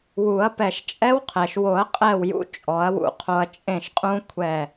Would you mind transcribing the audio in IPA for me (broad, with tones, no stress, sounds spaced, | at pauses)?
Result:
w u˨˩˦ ɐ̯ p ɛ˧˩ ʃ t͡ʃʼ ɛ˦˥ w qʰ ɛ˩ ʃ w o˨˩˦ ɐ̯ qʼ ɛ˥˩ w j ṵ˧ t͡ʃʼ ɔ˨˩˦ ɐ̯ w ṵ˧˩ qʰ o˧ ɐ̯ t͡ʃʼ ẽ˥˩ ʃ qʼ ũ˦˥ kʷʰ ɛ˧˩